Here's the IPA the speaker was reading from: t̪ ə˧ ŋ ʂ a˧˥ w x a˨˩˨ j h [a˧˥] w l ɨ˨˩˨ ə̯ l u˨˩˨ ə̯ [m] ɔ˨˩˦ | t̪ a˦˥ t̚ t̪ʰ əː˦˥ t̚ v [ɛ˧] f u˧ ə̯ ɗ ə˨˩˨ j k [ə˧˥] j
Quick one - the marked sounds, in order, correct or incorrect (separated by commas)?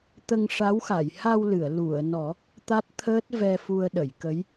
incorrect, incorrect, correct, correct